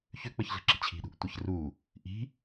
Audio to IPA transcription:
çʏk͡pəç ɮə̤ǁi̤t͡ɕʰi̤ɗṳʔ tʷəç ru | ʔi̤

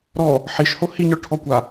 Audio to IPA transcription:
ɾɔ | ħiʃho hiɲɔɭʈʰɔkʷa

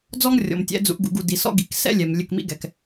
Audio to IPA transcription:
d͡zɔ˦ŋrʲɔ̰˨mtʲɛ̰˨˦ d͡zṵ˨ʔɡṵ˨ɡu˨ di˨sɔ̰˦ɡḭ˨k sɛ̰˦lʲɛ˨m lʲɘ˦˨kmḭ˦ɡɛ˨k

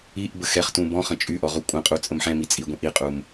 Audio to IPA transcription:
iʔ bəxɛχtũ bɔ̃χə̃ t͡ʃʼyʔɔ ʁukʷʼə̃qʼu t͡sʼəmħɛ̃mi t͡sʼiɡʷĩʔ iqʼum

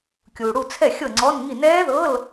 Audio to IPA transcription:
kʲuː˨ɽu˥˨t͡sʰɛ˥˨ xʲɤ˥˨ŋ͡ǀɔ˧˥˧nŋi˥˨ nɛː˦˥ðɤ˧˥˧l

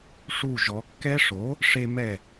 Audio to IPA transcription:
ʂu˧˩ʒɔ˩˧kːɛ˦ʂo˩˥ | ʂe˦mɛ˥˩

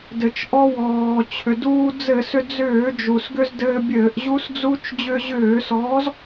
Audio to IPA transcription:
dɘ˩t͡ʃʔɔ˧wɔː˩t͡ɕʰʏ˩ duː˧d͡zɘ˧˩˧sʏ˧ d͡zʏː˧˩˧d͡ʒu˩sɡʏ˧z dɘː˧bʲɘː˧˩˧ʔʑu˦˥sd͡zu˦˥t͡ʃ d͡ʑʏː˧ʑʏː˧˩˧sɔː˨˥z

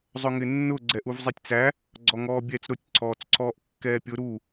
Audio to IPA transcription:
zˤʊŋɪnːʊ ɡ͡ǀɛʔuvzˤitʲt͡sæ | ɡ͡ǀɔŋɔːbʲɛːt͡sɾʊtʲ ǀʰɔːt͡sǀʰɔːʔkːɛːpʲʊ ɾu

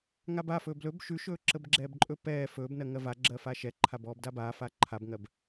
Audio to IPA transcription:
ŋaba fɵːblɵb ʃʉʃɵː ǁəbɡ͡ǁɛːbǃʼɵ pɛː fɵːbnɜ ŋɜva ɡ͡ǁɜfaːʃɛ ǃʰabɔːbdabaː faǃʰabŋɜb

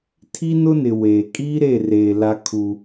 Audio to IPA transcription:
tʰi˦ nʊ˦nɪ˨ weː˨ kʼiː˦ɾe˦˨reː˨ la˦kʰu˦

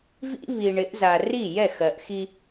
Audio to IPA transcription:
vḭ˦ βi˨ɳɪ˨˦ʔza˨ ri˦˨jɛ˦˨x ɜ˨ʔxi˦

